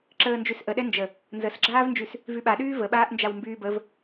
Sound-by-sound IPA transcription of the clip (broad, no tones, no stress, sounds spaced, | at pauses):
ǁ əː n d͡ʒ y s ʔ ə ɗ ɛ n d͡ʒ ə | n z ə s ɡ͡ǁ aː v n d͡ʒ y s | v y ɓ a ɗ yː v ə ɓ aː ʔ n d͡ʒ a w m b yː b ə v